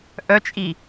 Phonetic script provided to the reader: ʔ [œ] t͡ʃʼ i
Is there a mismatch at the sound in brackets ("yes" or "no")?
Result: no